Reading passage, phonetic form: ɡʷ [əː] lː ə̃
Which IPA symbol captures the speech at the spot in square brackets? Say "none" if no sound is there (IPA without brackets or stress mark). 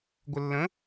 ə